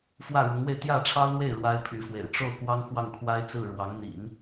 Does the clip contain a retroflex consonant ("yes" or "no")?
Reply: yes